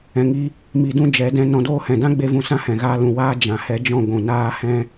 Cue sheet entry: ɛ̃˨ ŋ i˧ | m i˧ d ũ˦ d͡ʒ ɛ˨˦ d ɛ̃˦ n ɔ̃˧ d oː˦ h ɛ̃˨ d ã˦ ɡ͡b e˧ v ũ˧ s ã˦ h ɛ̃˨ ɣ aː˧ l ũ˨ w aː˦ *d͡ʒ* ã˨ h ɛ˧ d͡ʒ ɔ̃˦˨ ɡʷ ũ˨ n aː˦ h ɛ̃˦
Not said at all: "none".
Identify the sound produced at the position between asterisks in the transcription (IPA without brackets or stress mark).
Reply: d͡ʒ